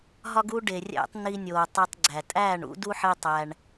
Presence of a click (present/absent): present